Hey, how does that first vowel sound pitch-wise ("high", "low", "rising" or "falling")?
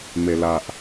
low